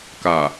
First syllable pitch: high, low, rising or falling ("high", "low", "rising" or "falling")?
low